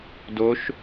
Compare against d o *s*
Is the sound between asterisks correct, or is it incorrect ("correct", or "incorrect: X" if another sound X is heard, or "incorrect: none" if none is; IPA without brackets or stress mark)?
incorrect: ʃ